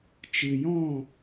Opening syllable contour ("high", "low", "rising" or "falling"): low